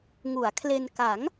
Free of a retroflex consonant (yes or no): yes